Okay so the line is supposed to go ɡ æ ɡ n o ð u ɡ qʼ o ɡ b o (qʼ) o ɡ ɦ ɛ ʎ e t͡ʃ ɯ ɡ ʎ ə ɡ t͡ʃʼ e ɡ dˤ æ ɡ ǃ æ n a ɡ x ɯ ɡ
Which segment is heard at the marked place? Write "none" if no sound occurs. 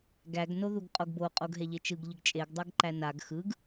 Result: qʼ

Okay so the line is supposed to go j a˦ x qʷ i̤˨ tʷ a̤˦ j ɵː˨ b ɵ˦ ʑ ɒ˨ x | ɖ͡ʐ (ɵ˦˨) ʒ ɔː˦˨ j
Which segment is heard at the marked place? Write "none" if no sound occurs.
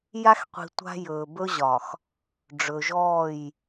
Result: ɵ˨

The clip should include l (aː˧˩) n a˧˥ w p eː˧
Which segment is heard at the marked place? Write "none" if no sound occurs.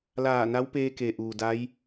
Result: aː˧˩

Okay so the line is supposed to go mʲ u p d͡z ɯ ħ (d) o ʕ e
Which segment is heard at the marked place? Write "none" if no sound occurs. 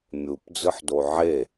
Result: d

